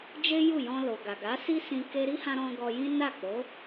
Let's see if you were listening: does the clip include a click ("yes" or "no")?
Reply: no